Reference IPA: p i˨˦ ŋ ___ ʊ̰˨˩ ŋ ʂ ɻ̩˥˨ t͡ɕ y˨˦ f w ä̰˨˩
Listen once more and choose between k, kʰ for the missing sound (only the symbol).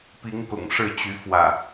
k